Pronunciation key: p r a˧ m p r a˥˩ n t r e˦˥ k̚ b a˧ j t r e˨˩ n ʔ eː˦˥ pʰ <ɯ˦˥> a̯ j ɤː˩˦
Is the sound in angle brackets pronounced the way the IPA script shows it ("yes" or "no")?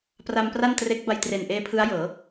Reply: yes